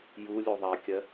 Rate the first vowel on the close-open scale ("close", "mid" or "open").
close